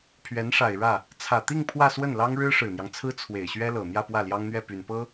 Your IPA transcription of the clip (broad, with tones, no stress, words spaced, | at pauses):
pʰɥɛ˧˥nʂa˨˩ɪ̯ɻä˥˩ | t͡sʰä˨˩t̪i˥˧ŋ pʰwä˥˧swə˥˩nlɑ˥ŋ ɻɻ̩˥ʂɻ̩˨˩n̪jɑ˦ŋt͡sʰɹ̩˥ t͡sʰwe˨˩ɪ̯ɕɥɛ˥lɤ˨˩ n̪jä˥˧pwä˥˩ljɑ˥ŋn̪ɥɛ˥˩ py˨˩npɤ˥